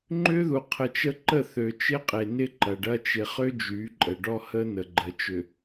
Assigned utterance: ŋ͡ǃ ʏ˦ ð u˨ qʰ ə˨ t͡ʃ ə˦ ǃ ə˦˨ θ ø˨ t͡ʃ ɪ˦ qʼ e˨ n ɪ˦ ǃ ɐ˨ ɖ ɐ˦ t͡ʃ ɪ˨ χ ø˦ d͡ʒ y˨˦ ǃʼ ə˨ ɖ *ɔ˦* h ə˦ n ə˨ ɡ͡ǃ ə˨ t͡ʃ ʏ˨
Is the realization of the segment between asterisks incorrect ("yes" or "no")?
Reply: no